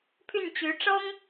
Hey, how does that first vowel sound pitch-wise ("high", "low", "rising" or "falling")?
falling